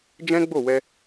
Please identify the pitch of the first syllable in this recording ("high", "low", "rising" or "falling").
high